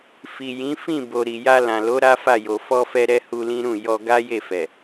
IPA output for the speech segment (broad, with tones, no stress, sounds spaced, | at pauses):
f i˨ j ĩ˨˦ f ĩ˦˨ b o˨ ɾ i˨ j a˧ l ã˨ l o˨˦ ɾ a˦ f a˦˨ j o˨ f ɔ˧ f ɛ˧ ɾ ɛ˧ h u˧ l ĩ˦ ɾ ũ˦˨ j ɔ˧ ɡ a˦ j e˦˨ f ɛ˨